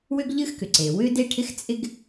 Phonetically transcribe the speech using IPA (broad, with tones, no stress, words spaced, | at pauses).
wʏ˥ɡʎɨ˥xkʏ˩ǀe˩ wʏ˥de˥ ʈʰɪ˥xt͡sʼɪ˥ɡ